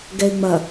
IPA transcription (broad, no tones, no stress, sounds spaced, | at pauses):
ɡ ɛ ɪ̯ ŋ͡m ɐ